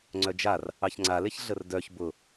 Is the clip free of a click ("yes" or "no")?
no